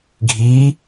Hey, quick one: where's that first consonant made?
velum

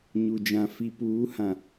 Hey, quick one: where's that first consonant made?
palate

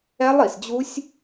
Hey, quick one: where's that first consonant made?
tongue tip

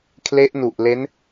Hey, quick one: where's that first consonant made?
velum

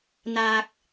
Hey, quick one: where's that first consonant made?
tongue tip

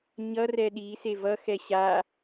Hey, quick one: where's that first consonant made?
palate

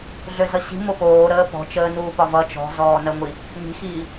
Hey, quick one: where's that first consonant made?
tongue tip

